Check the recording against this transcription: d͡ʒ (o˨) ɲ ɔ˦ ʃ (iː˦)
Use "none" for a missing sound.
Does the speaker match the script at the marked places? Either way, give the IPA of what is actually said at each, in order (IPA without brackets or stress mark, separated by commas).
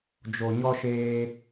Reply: o˨, eː˦